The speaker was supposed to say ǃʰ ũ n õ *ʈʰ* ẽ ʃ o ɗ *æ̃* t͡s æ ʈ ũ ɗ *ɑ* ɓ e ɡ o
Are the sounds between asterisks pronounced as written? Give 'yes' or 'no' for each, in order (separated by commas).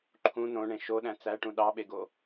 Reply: no, yes, yes